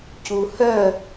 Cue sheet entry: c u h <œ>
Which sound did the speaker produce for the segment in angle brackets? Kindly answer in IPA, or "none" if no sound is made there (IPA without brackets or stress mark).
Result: œ